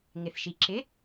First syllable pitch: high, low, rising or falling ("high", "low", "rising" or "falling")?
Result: low